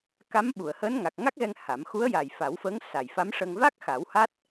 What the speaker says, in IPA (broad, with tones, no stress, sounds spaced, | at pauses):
k a˧˥ m ɓ u˨˩˨ ə̯ h əː˧˥ n ŋ a˨˩ k̚ ŋ a˦˥ k̚ ɣ ɛ˧ ŋ h a˨˩˦ m x u˧˥ ə̯ j a˨˩ j f a˨˩˦ w f əː˧˥ ŋ s a˨˩ j f a˧˥ m ʂ ə˧ ŋ v a˦˥ k̚ x a˨˩˦ w h a˦˥ t̚